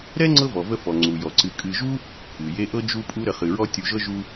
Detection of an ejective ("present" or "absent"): present